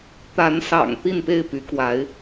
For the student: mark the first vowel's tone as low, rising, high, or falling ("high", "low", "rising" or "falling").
rising